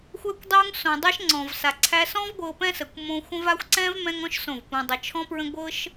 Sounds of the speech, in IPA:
xʷɛ˧kʷdˤu˧ŋ sõ˨dˤɤ˦ʃŋ͡ǀɔ̃˨vsa˨ ǀʰæ˧sɔ̃˦v ɡʷɤ˧pɛ̃˦sə˨kʷ mõ˧xʷə̃˦va˦xʷ ǀɛ̃˦v mɛ̃˦ŋɔ̃˦ʃ sõ˦˨vpũ˧dˤə˧ t͡ʃʰɔ̃˦pɹə̃˦ ɡʷɤ˦ʃ

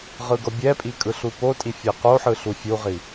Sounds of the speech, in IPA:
ʁɯɡɤbʲɛpʼi kʼɯɬupotʼi fʲeqoħɯ ɬufʲuʁi

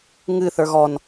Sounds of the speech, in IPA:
ŋɨ θə˞ɣɔn

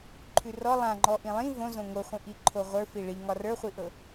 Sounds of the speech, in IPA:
ǃʰʉrɔ lˠãŋ͡ǃɔ ʔĩlˠĩ võ zõŋoχʷĩ ʔiǃʰoʁʷə˞ fiɭiŋɒ rə˞χʷiʔɤ

